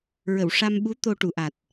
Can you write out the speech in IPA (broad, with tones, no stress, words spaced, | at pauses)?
ɹə˨˩˨wʂa˧mɓu˧˥ t̪o˧ ʈu˨˩˨ʔa˨˩t̚